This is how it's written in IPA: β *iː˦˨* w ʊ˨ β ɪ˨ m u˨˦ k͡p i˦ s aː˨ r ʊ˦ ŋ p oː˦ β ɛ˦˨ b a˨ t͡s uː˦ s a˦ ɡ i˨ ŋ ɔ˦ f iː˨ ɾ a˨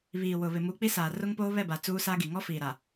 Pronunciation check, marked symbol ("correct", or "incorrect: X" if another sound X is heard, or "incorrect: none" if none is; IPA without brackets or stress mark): incorrect: iː˨